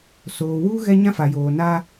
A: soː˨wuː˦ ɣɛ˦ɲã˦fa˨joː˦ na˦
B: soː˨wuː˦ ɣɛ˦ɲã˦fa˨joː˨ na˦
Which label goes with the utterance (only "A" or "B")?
B